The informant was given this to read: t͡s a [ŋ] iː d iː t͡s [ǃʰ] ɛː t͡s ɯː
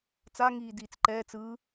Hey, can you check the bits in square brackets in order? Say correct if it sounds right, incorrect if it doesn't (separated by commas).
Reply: correct, incorrect